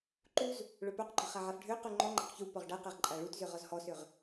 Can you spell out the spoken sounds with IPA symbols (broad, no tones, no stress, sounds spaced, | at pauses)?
ǃ u z | ɭ œ p œ q ɡ͡ǃ œ χ a ʕ a f ɖʱ ø q u ŋ͡ǃ ɔ ŋ͡ǃ ɛ q ç u p ɔ ʁ ɖ a q ɛ ʁ ǃʼ a ɭ u t z ø ʁ ɔ z h ɔ s ø ʁ